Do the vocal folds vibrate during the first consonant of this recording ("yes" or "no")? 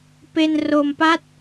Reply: no